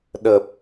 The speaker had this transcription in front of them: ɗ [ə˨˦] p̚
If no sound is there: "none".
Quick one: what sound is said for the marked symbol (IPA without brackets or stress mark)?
ə˨˩